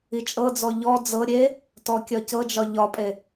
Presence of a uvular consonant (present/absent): absent